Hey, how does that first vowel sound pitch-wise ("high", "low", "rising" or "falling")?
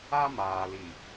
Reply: high